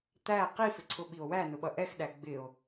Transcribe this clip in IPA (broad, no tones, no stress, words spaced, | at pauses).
t̪æ qifɪǀʰʊ ɓio̯wæ nʊɓʌʔɛxɗæ ɡ͡bɪo̯